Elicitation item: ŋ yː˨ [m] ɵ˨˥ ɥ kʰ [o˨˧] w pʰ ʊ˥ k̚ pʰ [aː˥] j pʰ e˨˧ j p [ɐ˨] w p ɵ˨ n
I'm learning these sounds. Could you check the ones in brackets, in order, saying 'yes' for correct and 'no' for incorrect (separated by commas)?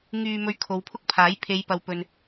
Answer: yes, yes, no, yes